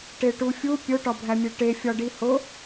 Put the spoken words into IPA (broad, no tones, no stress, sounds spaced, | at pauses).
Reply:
ʈ e ʈ u fʲ u pʲ o ʈ ɒ bʱ æ mʲ e ʈ e fʲ ɒ ɖ i h o